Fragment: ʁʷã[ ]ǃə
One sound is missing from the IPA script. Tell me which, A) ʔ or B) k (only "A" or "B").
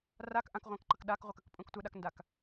B